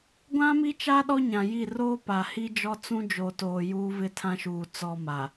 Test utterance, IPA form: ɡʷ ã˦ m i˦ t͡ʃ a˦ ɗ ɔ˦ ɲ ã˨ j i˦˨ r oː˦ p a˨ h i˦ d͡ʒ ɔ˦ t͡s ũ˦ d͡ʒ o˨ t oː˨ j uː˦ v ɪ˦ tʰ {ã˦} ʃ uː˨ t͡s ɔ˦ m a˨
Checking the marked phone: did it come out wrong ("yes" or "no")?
no